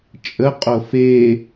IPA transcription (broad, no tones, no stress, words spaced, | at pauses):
t͡ʃʼəqʼo fe